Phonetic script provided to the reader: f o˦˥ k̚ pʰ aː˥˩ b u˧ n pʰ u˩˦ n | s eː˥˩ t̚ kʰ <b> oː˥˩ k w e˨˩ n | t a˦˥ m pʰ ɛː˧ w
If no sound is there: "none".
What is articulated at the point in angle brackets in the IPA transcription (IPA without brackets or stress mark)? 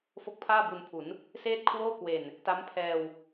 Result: w